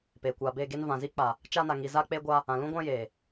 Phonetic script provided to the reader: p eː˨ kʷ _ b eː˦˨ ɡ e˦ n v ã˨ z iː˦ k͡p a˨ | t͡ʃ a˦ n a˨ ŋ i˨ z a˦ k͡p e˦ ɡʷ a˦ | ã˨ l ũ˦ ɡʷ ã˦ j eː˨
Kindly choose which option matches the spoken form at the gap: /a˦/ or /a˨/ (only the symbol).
a˨